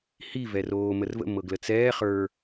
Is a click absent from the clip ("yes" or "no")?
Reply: yes